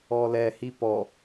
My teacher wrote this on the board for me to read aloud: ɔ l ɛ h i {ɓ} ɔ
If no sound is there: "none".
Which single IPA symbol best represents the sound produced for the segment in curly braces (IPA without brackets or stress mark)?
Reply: p